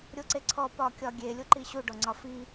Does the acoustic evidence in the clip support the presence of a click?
yes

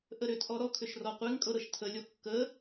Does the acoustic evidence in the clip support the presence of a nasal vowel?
no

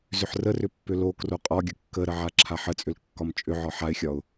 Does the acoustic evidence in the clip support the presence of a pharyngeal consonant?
yes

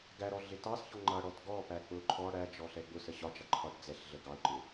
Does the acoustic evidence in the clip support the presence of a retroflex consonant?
yes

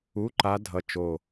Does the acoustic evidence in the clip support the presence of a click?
yes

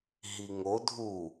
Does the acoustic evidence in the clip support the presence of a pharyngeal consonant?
no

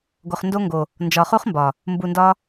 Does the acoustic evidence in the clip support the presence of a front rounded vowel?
no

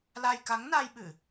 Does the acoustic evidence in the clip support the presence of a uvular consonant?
no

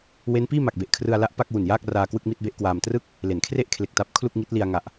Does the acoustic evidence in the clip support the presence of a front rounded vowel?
no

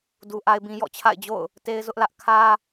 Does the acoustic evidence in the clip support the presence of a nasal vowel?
yes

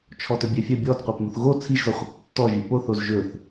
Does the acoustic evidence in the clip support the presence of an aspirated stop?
yes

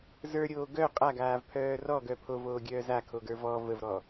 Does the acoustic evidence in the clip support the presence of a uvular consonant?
yes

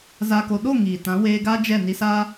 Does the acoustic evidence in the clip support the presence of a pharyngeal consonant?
no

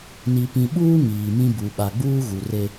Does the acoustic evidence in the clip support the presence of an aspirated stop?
no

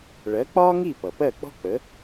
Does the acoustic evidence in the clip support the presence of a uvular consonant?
no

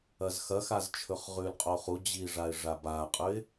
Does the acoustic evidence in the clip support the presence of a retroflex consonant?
yes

